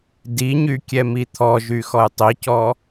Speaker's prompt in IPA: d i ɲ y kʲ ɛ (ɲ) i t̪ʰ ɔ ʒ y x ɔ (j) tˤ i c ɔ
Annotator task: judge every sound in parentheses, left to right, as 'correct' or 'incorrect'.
incorrect: m, correct

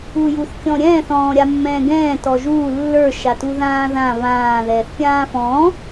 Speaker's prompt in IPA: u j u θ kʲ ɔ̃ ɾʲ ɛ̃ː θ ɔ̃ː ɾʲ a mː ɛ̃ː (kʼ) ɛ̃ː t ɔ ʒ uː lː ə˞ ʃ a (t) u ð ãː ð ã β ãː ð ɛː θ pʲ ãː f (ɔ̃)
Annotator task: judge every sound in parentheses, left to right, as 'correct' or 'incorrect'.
incorrect: ɡ, correct, incorrect: ɔ̃ː

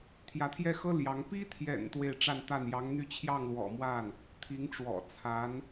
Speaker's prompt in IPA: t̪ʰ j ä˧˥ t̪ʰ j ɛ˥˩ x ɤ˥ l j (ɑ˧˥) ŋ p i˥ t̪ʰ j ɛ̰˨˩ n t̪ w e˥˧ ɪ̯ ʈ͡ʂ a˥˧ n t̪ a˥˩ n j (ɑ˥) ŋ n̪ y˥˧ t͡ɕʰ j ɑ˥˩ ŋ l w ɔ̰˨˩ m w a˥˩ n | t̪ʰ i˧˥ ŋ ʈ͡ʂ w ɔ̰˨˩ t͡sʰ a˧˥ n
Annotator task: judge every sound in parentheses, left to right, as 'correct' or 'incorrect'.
correct, incorrect: ɑ˧˥

